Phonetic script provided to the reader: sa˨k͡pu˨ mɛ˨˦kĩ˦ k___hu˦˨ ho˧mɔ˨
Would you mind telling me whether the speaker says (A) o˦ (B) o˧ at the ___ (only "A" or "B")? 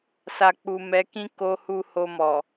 A